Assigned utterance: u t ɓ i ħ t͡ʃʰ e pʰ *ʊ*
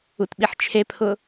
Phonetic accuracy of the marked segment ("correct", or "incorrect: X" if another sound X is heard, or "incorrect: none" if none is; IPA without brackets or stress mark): correct